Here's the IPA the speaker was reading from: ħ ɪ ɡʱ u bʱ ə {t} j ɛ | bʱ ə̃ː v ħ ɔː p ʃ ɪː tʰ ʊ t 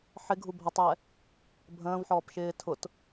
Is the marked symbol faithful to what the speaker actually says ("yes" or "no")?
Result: no